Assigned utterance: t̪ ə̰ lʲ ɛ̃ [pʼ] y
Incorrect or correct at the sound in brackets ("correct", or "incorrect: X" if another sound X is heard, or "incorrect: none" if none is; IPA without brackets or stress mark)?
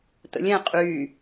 incorrect: qʼ